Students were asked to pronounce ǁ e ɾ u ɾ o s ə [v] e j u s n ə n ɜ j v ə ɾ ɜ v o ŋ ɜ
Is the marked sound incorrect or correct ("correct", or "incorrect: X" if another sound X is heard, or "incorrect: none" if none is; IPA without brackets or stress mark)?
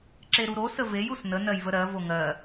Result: correct